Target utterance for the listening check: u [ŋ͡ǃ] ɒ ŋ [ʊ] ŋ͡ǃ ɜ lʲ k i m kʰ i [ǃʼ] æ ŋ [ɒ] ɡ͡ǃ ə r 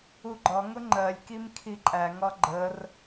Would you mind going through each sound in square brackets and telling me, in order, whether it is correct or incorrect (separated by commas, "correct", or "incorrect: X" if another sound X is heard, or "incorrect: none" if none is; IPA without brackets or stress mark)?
incorrect: ɡ͡ǃ, correct, correct, correct